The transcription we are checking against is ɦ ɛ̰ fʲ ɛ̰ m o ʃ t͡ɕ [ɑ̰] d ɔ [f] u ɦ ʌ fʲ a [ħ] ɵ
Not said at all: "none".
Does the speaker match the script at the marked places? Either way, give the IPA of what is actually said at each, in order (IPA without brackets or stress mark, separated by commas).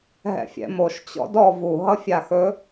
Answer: ɔ̰, v, x